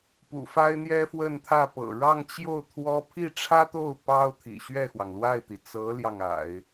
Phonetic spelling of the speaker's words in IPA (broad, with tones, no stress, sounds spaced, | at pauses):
p ṵ˨˩ f a˥ ɪ̯ n̪ j ɛ˥ f w ə˥˧ n t̪ʰ ä˥˩ p ɤ̰˨˩ ɻ ɑ˥˧ ŋ t͡ɕ j o˥˩ ʊ̯ t̪ʰ w ɔ˥ pʰ i˥˩ ʈ͡ʂʰ ä˥ t̪ o˥˩ ʊ̯ p ɑ˥ ʊ̯ t̪ʰ ḭ˨˩ ɕ ɥ ɛ˥˩ x w ɑ˩ ŋ l w a˥˩ ɪ̯ t̪ i˩ t͡s ɤ˧˥ l j ɑ˥˩ ŋ a̰˨˩˦ ɪ̯